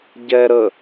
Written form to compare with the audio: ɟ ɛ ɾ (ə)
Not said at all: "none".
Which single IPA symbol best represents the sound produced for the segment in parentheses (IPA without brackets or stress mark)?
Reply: ə